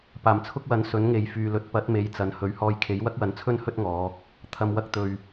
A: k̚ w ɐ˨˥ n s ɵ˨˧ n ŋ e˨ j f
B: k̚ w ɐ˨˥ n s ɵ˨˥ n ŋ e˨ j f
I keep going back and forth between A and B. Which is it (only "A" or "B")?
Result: B